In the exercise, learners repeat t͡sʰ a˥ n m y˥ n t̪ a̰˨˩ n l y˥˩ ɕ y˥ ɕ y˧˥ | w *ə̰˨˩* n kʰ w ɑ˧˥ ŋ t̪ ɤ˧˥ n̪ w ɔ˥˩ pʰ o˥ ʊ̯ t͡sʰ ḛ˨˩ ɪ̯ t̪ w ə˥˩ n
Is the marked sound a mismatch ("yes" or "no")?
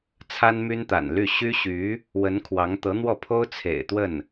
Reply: yes